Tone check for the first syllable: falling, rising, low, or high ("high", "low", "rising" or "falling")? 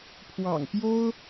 low